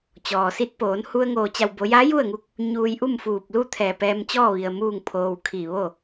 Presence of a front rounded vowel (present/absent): absent